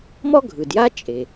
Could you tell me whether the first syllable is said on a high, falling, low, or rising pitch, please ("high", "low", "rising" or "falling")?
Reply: high